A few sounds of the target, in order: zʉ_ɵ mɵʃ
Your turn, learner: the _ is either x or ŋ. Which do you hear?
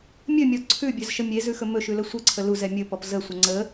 x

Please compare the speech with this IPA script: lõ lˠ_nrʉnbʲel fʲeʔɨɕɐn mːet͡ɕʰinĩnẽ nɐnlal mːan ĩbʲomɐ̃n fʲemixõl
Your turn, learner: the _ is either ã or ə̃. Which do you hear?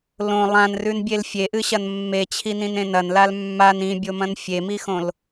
ã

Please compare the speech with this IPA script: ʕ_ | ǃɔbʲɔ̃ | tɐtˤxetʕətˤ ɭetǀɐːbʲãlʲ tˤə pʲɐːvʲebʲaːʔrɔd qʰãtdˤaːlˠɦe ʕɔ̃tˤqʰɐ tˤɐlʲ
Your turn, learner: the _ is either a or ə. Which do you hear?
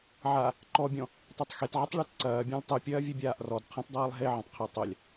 a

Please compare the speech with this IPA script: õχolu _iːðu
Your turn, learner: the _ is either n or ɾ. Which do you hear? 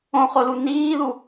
n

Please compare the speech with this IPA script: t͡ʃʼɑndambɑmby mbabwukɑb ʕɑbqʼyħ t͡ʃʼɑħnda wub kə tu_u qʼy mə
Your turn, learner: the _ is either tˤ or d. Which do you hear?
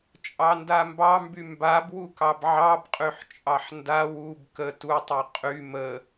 tˤ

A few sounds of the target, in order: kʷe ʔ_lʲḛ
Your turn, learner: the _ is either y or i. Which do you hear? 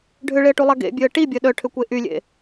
y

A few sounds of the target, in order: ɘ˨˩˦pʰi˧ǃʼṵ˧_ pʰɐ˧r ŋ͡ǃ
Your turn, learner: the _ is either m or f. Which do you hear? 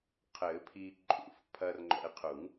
f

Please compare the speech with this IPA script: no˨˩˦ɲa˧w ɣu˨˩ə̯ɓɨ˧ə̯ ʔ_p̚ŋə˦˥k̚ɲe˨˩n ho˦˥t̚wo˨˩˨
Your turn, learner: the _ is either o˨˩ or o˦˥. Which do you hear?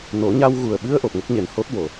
o˨˩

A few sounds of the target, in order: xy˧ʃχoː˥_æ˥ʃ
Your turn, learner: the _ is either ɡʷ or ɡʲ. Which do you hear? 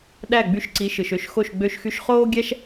ɡʲ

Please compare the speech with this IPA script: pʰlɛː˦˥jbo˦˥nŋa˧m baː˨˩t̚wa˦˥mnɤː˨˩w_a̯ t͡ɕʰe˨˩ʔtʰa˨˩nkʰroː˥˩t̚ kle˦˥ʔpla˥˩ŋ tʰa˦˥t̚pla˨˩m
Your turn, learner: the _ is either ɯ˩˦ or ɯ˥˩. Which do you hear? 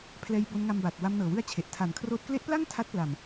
ɯ˥˩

